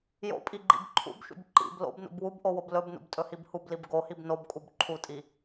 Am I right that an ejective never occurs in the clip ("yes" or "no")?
no